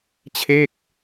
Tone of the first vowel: falling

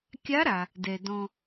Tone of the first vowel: rising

